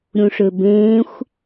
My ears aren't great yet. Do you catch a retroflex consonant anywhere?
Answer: yes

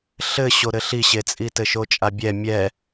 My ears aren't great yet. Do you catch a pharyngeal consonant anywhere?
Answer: no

